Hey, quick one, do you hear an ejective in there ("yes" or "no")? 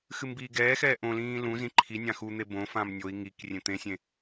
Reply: no